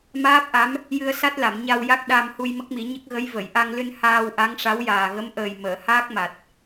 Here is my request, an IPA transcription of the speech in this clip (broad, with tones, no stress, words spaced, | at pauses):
maː˦˥p̚ʔa˧˥m | jɨ˧ə̯sa˦˥t̚la˨˩˨m ɲa˧w ja˦˥k̚ ɗa˧mhu˧j mə˦˥k̚mi˨˩˦ɲə˦˥k̚ ɣə˧˥j və˨˩˨jʔa˧ŋ lɨ˧n haː˧w ʔa˧˥ŋʂa˧˥wjaː˨˩ ɣə˧˥mʔəː˨˩j məː˨˩˨haː˦˥k̚ma˨˩t̚